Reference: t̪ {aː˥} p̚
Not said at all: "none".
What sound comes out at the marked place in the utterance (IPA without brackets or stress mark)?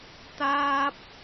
aː˧